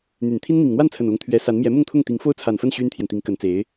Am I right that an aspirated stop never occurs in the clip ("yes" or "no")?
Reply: no